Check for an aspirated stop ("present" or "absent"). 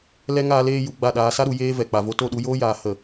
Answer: absent